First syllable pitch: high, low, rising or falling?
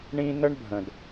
high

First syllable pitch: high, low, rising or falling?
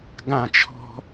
falling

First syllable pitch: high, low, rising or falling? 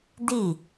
falling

